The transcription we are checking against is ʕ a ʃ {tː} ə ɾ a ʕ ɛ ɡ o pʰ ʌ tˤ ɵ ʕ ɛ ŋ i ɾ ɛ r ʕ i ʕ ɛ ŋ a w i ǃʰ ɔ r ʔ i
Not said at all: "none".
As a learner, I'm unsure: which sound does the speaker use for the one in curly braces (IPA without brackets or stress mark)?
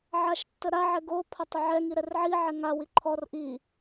tː